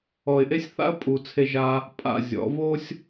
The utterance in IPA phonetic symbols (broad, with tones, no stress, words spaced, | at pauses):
ɔ˨ɪ̯ʔe˦sʲ θa̰˦ə̯ pʼu˨t͡sʰe˧ ʒa˦ | pʼa̰˦˨zʲɔ̰˨˦ vo˦sʲ